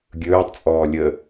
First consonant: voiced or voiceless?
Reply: voiced